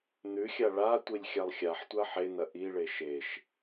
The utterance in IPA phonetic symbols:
n̪ ʉ xʲ a ɭ a tʷ i lʲ xʲ a lˠ xʲ a ħ tʷ a ħ e n̪ ɐ ʔ i ɭ e ʃ e ʃ

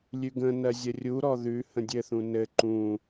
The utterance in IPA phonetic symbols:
lʲ ʉ ɡ ə̃ n ɜ zʲ ə rʲ u ɾ ɔ ð ʉ h ə̃ dʲ ɘ θ ũ n ɘ ǃ ũ

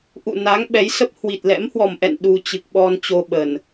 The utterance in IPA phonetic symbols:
ʔ ṵ˧˨ n a˨˦ ŋ ɓ ɛ˨˦ j s ə˦˥ p̚ h w i˨˩ t̚ l ɛ̰˧˥ m h w ɔ˨˩ m ʔ ɛ̰˧˨ n ɗ u˧ t͡ɕ ɨ˨˩ k̚ ɓ ɔ˧ n t͡ɕ o˧ ɓ ə˨˩ n

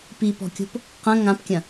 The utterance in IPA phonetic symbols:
p i p ɔ̤ kʲ o̤ p | q ɐ̃ ŋ ã p kʲ ɐ̃

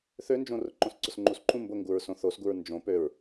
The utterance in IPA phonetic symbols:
θ ø n d͡ʒ õ r ʊ ǃ õ s ǀ ʊ s ŋ͡ǃ u s ǃʰ ũ m b ʊ ŋ ɡ u ɹ s õ θ o s ɡ u ɹ n d͡ʒ õ p ø ɹ

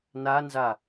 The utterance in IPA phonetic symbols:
n a n z a

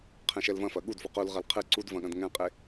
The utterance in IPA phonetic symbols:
qʰ ɛ̃ ʃ ɛ l v ɐ̃ f ɐ ɠ u d f u q u l ʁ ɐ l qʰ ɨ ǀ u d v ɐ̃ ɠ ɐ̃ d ŋ ɛ̃ qʼ e

